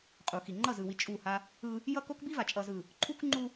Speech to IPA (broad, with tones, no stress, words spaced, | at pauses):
qʼu˨xi˨ ŋ͡ǃʌ˦˨zɯ˨wi˨ t͡ʃʼu˦˨ha˦ | ɯ˦ | jʌ˦ko˦kbi˦va˨ t͡ʃʼʌ˨zɯ˨ | ǃʰu˦kŋ͡ǃu˦